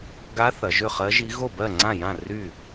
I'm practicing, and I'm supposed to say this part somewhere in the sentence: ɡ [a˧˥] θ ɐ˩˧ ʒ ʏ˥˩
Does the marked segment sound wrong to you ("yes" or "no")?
no